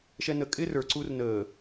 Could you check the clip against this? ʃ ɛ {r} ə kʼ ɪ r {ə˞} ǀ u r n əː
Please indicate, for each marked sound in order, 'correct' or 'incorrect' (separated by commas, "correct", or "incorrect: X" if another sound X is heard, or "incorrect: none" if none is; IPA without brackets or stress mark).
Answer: incorrect: n, correct